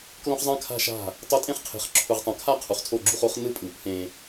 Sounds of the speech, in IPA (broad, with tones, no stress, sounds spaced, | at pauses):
k l õ˦ χ zˤ ã˦ kʰ a̤˦ ʃ a̤˦˨ | tˤ o˦ tʼ ẽ˦ χ qʰ e̤˨ χ ǁʰ u˨ ʁ tˤ ã˨ kʰ a˦ qʰ u˨ χ tʰ o˦˨ ɡ͡ǁ u˦ χ o˦ χ n ɯ˦ pʼ ɯ˨ pʰ ẽ˦